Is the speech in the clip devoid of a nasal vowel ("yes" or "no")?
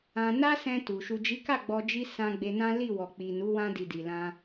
no